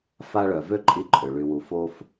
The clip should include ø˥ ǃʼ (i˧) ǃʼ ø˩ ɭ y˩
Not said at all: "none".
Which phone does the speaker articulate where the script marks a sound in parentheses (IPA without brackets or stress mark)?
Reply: i˧